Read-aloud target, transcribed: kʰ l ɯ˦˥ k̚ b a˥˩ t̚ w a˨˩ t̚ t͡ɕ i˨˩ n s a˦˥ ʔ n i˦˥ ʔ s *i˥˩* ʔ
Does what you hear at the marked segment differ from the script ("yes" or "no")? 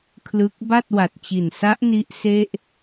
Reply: yes